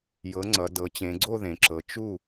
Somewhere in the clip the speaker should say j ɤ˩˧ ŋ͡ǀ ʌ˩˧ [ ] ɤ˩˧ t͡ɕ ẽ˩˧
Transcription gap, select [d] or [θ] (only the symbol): d